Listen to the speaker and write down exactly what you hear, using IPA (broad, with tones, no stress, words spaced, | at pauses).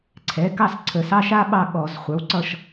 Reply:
ǀʰɛ˩˥kɑ˥˨s ǀʰə˧˩˧sɑ˧˥˧ʃa˥ɓɑ˥˨ ɠɔ˧˩˧zχʷə˞˩˥w ǀʌ˥˨ʃ